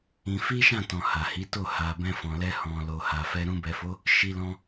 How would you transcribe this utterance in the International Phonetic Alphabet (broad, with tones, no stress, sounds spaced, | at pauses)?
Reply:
ĩ˧ f i˦ ʃ ã˦˨ t ɔ̃˨ h a˨ h i˨˦ t o˦˨ h a˨ b ɛ̃˧ f ɔ̃˨ l ɛ˧ h ɔ̃˨ l o˨ h a˨ f ɛ˧ ɾ ũ˧ b ɛ˨ f o˨˦ | ʃ i˧ l ɔ̃˧